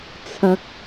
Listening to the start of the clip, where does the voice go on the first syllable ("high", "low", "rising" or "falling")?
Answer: low